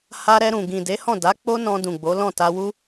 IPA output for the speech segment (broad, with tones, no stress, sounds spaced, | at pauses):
h a˧ ɾ ɛ˧ ɾ ũ˨ ɡ ĩ˨ d e˨˦ h ɔ̃˦˨ d a˨˦ k͡p o˦ n ɔ̃˧ d ũ˨ ɡ͡b o˨˦ l ɔ̃˦˨ t a˧ w u˦